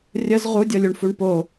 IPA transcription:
rʲəz ʁudʲɤlʲuɳfuɳ po

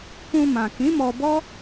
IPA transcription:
kũ˧mã˨ kĩ˨˦mɔ˧bɔ˦

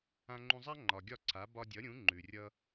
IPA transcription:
ã˧ŋ͡ǃũ˧zˤa˥ ŋ͡ǃɒ˩ ɡʲɒ˥˩ǀʰa˩˥ bɒ˧dʲʌ˩˥ɾʲũ˩˥ ŋ͡ǃʉ˩ rʲʌ˧

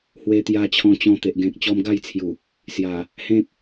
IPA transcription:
hwe˧t̪ja˧t͡ɕʰɔ̃˧t͡ɕɔ̃˧ t̪e˨ʔ ɡẽ˨k̚t͡ɕɔ˧m ɡa˥˧jt͡sʰju˨˩ | sja˨˩ | hẽ˦k̚

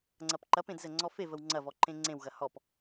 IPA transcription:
ŋ͡ǀɐpǃɐp ẽdzəŋ͡ǀɔfe vəwŋ͡ǀɐ vɔǃẽŋ͡ǀẽw ɣɐhɔp

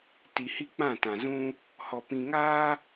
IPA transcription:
ti˨hi˦k͡pã˦˨ tã˨zũ˦ | hɔ˨ pĩ˨ŋaː˦

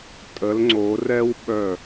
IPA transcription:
tʼə˩˧lŋ͡ǀo˩˧rɛ˦w ɓœ˧˩

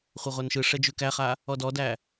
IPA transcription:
χʷʌʁʷanʃɯʂɛ d͡ʒʉkæχa | ɔdɔdæ

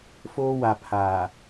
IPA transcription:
foː˦wa˨ pʰaː˨

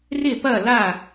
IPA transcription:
rɪ˥˩pɐ˥˩la˥˩

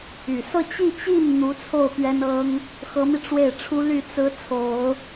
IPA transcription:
y˨˩ sɤ˥˧ t͡ɕi˥˧t͡ɕi˥˩n n̪u˧˥t͡sʰo˥˩ʊ̯ pɥɛ˥nɤ˥ŋ | xɤ˧˥mi˧ ʈ͡ʂwe˥˩ɪ̯ʈ͡ʂʰu˥ly˥˩ t͡sɹ̩˥t͡sʰo˨˩˦ʊ̯

